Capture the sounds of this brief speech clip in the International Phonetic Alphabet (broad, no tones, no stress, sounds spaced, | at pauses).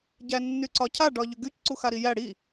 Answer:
ɟ æ nː y ǀ ɒ cʰ a ɖ ɒ ʎ ʏ ɡ y c ǀ u x a ɾ i j æ ɽ i